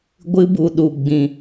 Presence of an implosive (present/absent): present